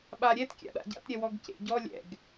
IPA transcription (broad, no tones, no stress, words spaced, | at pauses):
ɓaɾʲɛt kʲa̰ɗa̰ɟa̰t ɾʲɛwɔɡcḛɟɔ lʲɛ̰ɡ